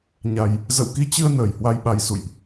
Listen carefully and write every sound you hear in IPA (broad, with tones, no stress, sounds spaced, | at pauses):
ɲ a˨˩ j | z ə̰˧˨ w k i˧ t͡ɕ ɨ˧ ə̯ n əː˧˩ j h w a˧ j ɓ a˨˦ j s ṵ˧˨ j ʔ